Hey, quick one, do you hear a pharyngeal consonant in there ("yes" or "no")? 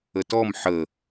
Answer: yes